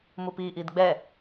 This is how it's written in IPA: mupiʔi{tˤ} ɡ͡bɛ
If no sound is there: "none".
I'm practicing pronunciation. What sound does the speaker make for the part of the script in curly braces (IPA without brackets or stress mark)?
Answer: d